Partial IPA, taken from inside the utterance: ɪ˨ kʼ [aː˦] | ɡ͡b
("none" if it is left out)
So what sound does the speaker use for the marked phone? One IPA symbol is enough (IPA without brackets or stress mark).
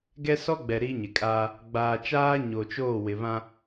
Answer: aː˦